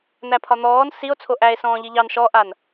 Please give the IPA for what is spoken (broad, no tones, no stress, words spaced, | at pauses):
n̪æpʰɒn̪ɔːn sio̯ t͡sʰoʔæe̯sɔ̃ː ʎiʎɑn ʃɔʔan